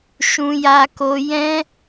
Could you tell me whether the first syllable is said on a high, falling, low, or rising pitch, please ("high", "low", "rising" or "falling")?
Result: high